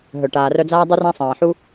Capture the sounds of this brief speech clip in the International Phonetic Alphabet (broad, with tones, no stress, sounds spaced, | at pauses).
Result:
ɦ œ˨ ʈ aː˨ r œ˧ d͡z aː˦ dˤ u˦ r ã˦ sˤ ɑ̃ː˨ ħ u˦